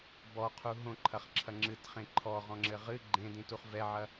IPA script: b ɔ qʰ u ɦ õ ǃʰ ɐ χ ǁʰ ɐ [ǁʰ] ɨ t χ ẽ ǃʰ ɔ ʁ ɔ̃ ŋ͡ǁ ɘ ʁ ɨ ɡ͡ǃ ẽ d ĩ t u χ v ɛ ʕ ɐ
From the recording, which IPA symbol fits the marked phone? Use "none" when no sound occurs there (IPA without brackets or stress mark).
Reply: ŋ͡ǁ